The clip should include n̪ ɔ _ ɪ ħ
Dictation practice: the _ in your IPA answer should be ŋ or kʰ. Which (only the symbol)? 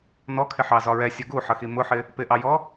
kʰ